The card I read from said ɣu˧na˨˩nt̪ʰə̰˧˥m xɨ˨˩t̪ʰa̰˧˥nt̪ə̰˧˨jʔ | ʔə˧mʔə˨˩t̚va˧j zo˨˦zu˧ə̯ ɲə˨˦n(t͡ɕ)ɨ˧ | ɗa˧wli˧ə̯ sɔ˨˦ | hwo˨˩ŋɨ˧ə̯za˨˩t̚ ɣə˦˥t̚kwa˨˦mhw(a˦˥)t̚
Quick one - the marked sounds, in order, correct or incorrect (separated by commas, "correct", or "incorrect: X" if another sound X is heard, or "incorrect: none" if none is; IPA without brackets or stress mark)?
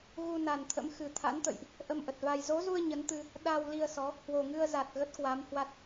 incorrect: t̪, correct